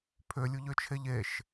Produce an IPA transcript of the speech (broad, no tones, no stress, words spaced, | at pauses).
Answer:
pʰølʲuʎøt͡ʃʰeʎ eʃ